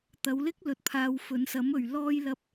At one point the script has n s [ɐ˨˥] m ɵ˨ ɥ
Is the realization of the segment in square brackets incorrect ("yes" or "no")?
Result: no